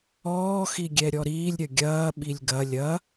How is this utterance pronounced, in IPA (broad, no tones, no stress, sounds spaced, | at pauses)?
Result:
ɔː x i ɡʲ ɛ ɾʲ ɔ ɾ iː lʲ ɾʲ ɐ ɡʲ ɐː ɓ i lʲ ɡ ɐ lʲ ɐ